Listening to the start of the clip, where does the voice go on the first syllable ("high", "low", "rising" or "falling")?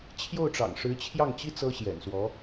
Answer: falling